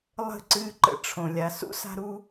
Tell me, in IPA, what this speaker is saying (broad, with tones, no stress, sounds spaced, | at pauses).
lˠ ə̤˦˨ ǀ ɨː˦ ǃ ə̰˧ ʈ͡ʂʰ õ˨ lʲ a˨ s ṵ˦ s a̤˧ ɾ u˧